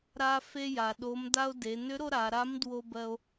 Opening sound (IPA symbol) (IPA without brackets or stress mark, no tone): ɾ